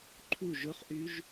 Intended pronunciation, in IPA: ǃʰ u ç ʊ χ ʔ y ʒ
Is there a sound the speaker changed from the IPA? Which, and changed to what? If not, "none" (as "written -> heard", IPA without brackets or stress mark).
ç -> ʒ